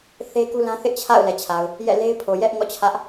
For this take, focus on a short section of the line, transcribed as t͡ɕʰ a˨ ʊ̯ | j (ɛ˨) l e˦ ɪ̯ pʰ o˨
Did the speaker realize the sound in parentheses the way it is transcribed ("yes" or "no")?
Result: no